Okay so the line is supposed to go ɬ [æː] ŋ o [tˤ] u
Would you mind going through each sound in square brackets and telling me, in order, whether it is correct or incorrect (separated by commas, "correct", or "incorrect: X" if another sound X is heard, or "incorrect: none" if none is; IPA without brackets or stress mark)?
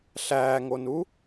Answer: correct, incorrect: n